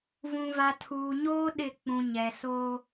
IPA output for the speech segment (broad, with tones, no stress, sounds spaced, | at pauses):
v ũ˨ v a˨ tʰ uː˨ ɲ oː˦ ɗ ɪ˦˨ k͡p ũ˨ ɲ ɛ˨ s o˦